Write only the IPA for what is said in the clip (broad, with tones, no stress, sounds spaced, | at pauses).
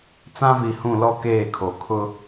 t͡s ã˦ v i˨ h ũ˦˨ l ɔ˦ k eː˦˨ kʰ o˨ kʰ ʊ˦